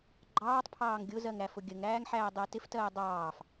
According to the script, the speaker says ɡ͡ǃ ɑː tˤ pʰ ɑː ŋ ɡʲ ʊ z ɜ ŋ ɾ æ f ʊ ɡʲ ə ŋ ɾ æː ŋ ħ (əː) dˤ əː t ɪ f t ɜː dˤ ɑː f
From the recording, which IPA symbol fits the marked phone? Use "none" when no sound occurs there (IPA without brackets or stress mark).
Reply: æː